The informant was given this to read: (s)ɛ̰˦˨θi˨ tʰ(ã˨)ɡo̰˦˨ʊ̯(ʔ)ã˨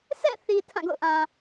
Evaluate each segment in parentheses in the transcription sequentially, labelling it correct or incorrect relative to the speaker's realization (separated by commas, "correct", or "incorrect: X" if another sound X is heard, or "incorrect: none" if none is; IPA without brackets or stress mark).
correct, incorrect: ã˦˨, correct